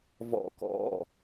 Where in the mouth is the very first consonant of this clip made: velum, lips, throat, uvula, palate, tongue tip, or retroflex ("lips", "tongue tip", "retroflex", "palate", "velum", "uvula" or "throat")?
lips